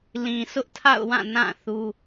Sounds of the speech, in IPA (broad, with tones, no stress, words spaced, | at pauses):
lĩ˨sʊ˦ʔtʰa̰˦˨ʊ̯wã˦˨ nã˦˨ θu˦